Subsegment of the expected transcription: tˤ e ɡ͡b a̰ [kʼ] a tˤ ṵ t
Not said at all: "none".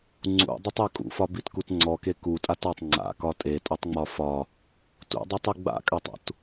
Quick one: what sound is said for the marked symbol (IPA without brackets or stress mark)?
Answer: kʼ